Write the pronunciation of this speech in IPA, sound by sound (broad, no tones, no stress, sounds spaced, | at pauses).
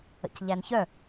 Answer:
ə̰ c ʎ æ n ç œ